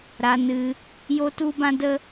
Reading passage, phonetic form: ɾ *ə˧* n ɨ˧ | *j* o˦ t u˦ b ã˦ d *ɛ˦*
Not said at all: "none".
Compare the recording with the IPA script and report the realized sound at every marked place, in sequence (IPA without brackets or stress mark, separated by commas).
a˧, j, ə˦